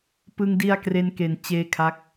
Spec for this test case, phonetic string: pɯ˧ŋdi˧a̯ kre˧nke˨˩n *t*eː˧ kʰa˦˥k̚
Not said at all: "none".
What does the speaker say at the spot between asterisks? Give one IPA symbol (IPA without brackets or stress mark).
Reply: t͡ɕ